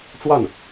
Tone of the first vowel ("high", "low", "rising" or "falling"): falling